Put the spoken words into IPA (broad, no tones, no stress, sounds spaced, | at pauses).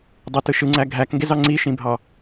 dˤ e t ɯ ʃ ɯ ŋ͡ǀ æ ɡʱ æ k ŋ ɡ e z ɑ ŋ͡ǀ i ʃ ĩ bʱ ɑ